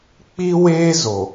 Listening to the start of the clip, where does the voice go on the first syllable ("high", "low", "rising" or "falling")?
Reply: high